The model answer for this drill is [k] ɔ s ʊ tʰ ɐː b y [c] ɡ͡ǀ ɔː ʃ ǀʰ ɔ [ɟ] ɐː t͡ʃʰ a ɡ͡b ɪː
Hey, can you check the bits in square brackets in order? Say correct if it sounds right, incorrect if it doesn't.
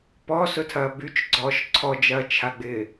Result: incorrect: p, incorrect: t͡ʃ, incorrect: d͡ʒ

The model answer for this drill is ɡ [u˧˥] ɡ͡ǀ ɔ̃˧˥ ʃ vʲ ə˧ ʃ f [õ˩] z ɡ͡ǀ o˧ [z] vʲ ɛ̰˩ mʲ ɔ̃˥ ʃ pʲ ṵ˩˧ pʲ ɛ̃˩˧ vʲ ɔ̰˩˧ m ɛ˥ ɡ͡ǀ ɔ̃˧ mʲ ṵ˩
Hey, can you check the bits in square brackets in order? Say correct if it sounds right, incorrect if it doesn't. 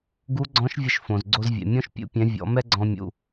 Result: correct, correct, correct

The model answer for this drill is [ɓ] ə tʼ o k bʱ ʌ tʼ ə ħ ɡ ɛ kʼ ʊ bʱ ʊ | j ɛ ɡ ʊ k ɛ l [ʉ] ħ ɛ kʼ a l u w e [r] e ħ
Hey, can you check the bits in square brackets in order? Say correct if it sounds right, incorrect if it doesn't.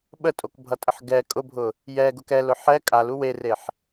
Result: correct, incorrect: ʊ, correct

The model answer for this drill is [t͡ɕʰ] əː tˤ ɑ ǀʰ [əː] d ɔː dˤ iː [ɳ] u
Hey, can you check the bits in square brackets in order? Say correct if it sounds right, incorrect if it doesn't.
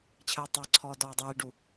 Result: correct, incorrect: ɔː, incorrect: ɖ

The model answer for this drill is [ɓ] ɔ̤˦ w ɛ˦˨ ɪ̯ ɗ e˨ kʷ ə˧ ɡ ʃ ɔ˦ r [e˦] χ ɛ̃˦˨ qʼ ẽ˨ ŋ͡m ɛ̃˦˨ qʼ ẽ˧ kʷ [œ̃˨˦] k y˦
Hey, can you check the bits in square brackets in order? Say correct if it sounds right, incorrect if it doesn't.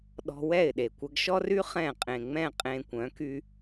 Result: incorrect: ɗ, incorrect: y˦, correct

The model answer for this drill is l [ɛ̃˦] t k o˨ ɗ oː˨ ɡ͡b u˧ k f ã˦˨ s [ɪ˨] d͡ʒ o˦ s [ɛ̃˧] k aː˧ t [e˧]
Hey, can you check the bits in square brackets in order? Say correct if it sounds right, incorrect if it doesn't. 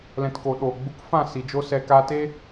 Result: incorrect: ɛ̃˨, incorrect: i˨, incorrect: ɛ˧, incorrect: e˦

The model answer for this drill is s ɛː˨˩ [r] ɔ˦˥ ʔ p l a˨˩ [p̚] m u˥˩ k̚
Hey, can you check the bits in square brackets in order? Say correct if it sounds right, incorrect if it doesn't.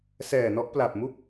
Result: incorrect: n, correct

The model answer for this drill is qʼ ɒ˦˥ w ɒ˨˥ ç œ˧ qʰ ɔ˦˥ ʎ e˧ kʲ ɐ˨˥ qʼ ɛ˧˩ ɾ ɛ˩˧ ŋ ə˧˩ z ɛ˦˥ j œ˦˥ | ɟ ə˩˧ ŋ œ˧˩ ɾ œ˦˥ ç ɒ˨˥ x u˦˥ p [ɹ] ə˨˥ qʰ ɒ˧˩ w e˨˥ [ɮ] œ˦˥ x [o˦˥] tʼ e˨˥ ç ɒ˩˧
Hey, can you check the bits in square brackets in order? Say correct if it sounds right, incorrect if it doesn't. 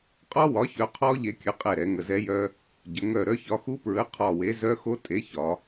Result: correct, incorrect: z, correct

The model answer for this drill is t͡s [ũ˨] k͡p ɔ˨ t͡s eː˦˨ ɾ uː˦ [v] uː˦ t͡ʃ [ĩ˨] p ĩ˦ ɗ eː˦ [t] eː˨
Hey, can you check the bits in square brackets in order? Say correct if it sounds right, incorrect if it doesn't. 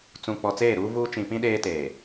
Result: correct, correct, correct, correct

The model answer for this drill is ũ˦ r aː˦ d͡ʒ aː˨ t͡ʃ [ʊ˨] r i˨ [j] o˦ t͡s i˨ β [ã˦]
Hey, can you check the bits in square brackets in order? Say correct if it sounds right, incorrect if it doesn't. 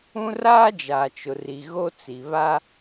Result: correct, incorrect: ɣ, incorrect: a˦

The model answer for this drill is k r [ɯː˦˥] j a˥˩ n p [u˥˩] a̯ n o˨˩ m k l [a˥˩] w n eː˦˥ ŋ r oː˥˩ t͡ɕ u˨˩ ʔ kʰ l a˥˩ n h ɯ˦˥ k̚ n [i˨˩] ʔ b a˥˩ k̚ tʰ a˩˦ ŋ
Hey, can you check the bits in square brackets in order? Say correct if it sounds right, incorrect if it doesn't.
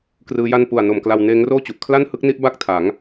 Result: correct, incorrect: u˨˩, incorrect: a˧, incorrect: i˥˩

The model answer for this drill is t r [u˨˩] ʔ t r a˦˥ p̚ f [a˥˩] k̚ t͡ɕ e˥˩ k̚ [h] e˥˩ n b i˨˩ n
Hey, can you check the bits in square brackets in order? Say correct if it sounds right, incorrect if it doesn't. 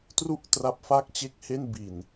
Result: incorrect: u˥˩, correct, correct

